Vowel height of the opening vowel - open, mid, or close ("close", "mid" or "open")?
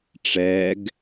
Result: mid